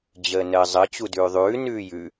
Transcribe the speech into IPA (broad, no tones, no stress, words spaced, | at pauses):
d͡ʑəːnəːzˤə t͡ɕudʉːðˤʉː nʉːjʉ